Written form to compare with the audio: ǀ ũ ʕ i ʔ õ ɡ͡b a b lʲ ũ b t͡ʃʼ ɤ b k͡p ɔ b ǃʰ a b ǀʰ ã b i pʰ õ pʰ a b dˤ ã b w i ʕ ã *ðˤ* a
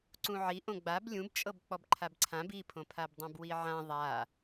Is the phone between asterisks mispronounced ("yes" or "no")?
no